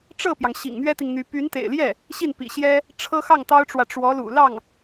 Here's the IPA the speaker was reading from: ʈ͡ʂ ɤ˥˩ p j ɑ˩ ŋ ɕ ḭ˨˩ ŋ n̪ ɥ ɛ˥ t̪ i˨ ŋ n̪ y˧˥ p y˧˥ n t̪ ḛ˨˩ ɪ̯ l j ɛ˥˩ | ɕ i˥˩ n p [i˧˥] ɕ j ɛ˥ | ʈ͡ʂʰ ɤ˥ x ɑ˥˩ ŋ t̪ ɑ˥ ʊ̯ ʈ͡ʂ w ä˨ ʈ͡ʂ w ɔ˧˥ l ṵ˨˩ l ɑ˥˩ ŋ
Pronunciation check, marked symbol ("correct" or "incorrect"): incorrect